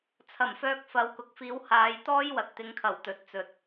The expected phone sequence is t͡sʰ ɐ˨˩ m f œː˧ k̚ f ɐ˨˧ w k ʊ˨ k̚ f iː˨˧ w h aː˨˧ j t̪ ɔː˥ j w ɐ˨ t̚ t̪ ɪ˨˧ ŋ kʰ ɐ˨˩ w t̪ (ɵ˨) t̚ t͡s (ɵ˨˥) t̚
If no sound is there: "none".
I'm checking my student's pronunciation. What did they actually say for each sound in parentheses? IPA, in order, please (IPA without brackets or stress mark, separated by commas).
ɵ˨, ɵ˨